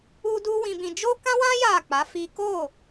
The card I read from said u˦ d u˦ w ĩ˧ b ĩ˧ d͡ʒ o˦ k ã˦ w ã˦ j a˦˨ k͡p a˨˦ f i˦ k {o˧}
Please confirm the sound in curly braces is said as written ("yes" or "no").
no